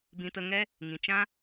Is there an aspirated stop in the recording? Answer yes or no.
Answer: no